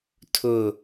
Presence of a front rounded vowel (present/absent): absent